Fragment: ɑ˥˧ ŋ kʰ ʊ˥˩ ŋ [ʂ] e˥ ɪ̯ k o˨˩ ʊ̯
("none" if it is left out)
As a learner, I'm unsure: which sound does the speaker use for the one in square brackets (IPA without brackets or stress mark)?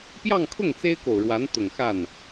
t͡s